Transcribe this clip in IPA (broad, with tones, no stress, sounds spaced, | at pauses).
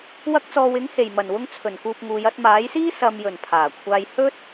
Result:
w ɐ˧ k̚ t͡s ɔː˨ w ɪ˨˥ ŋ h e˨˩ j m ɐ˨˩ n w ʊ˧ ŋ t͡sʰ ɵ˨˩ n k uː˨ p̚ ŋ uː˨˧ j ɐ˨˥ t̚ m aː˨˥ j s iː˥ s ɐ˨ m j ɵ˨˩ n pʰ aː˨˩ kʷʰ aː˧ j h ɵ˥ t̚